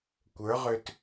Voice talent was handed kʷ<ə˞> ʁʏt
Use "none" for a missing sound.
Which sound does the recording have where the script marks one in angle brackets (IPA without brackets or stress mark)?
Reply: ə˞